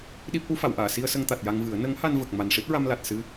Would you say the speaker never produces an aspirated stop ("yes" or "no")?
yes